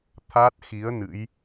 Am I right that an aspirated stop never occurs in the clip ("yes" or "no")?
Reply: no